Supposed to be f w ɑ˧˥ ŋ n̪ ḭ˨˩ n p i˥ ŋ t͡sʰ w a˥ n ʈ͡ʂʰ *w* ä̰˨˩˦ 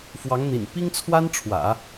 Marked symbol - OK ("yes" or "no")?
yes